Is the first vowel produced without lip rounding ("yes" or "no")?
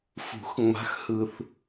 no